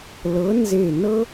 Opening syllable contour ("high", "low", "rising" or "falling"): rising